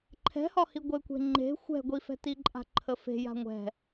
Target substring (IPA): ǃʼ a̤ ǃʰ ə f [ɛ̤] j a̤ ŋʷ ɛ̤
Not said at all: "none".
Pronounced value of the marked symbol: e̤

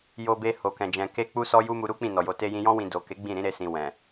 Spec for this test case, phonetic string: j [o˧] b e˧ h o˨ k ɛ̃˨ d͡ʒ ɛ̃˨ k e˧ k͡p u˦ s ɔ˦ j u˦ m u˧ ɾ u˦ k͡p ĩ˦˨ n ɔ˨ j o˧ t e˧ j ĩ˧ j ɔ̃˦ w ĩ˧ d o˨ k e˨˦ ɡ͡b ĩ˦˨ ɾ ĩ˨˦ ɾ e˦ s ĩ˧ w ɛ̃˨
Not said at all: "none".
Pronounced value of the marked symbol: o˧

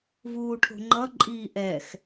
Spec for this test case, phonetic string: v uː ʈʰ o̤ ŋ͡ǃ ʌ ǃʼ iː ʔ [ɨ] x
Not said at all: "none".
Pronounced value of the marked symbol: ɛ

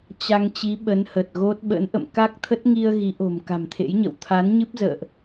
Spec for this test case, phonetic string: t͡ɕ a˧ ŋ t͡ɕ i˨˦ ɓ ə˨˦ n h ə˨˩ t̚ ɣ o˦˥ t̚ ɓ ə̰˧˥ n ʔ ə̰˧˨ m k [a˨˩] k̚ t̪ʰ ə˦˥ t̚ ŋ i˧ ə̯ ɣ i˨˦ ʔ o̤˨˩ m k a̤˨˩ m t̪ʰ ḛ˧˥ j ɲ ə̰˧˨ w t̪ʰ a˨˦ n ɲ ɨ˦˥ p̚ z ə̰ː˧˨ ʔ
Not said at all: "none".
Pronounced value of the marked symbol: a˦˥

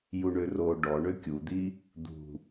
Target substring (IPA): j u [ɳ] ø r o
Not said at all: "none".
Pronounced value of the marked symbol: ɳ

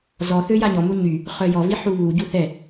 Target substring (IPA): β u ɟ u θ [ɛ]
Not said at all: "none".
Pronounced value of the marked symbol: ɛ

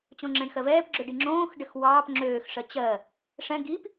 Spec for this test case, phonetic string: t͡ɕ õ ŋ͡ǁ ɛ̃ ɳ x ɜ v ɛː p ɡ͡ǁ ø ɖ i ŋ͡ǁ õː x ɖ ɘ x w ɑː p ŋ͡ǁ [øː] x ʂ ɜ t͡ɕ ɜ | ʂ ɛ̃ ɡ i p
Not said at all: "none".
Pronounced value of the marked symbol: øː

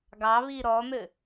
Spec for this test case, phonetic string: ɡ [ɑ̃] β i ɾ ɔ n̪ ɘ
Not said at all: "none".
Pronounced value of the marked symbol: ɑ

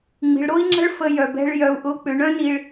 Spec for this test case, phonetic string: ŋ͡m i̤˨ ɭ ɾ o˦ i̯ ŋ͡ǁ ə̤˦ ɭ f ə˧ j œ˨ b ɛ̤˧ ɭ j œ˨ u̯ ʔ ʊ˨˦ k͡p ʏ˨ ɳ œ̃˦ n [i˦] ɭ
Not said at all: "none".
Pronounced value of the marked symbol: i˨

